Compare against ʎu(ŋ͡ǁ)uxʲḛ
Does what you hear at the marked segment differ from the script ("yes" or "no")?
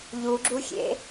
yes